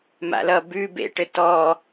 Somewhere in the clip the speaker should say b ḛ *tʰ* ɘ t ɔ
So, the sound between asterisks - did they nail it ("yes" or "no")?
no